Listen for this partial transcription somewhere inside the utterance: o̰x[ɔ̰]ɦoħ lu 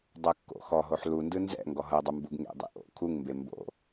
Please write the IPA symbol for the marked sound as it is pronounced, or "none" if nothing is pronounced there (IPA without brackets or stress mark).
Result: ɔ